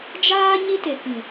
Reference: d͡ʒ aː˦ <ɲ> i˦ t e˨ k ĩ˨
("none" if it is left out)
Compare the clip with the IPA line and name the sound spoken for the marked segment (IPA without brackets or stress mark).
ɲ